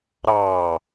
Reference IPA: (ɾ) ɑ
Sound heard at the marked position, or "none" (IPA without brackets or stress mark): ɾ